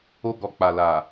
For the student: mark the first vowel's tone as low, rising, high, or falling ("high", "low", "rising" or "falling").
high